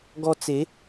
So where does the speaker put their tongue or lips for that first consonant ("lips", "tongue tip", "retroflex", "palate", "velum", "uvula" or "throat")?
velum